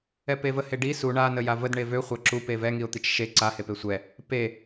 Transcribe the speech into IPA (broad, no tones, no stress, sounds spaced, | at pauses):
ɛ p e v ə h e ɖ i s u ɳ a n ə j a v ə d ɳ e v ø χʷ a ǁ u p e v ɛ ŋ i ʊ̯ t̪ i t͡ʃ ʃ e ǀ a h e p e sʷ ɛ | p e